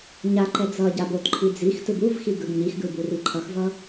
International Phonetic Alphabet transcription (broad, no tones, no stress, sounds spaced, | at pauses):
ɲ a ǃ ɛ d͡z ʌ ɟ a b o t ǃʰ i d͡z i x t ɯ b u v x i ɡ ɯ ɡ ɲ i x ɡ ɯ b u r i ǃʰ ʌ x v ʌ